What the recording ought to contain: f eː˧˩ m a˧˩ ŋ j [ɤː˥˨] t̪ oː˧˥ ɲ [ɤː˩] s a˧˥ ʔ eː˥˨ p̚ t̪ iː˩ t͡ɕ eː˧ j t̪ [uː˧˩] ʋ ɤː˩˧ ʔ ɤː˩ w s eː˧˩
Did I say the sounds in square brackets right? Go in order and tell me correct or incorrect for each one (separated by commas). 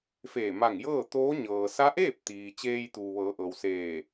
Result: correct, correct, incorrect